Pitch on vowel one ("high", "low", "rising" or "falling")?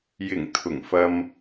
low